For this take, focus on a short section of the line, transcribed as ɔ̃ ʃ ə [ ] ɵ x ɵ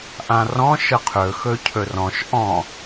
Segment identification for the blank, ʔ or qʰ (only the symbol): qʰ